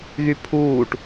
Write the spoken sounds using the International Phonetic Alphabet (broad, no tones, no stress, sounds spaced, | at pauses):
ɣ y pʰ uː ʈ